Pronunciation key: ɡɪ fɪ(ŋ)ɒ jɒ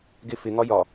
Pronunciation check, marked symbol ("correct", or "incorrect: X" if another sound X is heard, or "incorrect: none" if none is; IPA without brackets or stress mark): correct